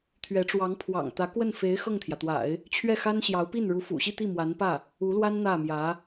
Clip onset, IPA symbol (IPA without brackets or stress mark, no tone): t̪ʰ